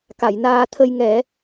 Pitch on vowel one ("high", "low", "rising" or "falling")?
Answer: low